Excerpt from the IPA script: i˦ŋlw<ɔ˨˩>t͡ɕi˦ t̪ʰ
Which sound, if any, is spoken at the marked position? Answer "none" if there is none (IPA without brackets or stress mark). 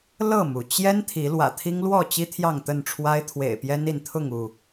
ɔ˥˨